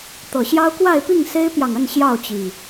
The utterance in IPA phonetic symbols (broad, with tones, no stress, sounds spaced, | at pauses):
t̪ ɤ˨˩ ɕ j ɑ˦ ʊ̯ k w a˥˨ ɪ̯ p i˥˨ ŋ s e˦ ɪ̯ p j ɑ˨ ŋ ə˥˨ n ɕ j ɑ˥˨ ʊ̯ t͡ɕ i˨˩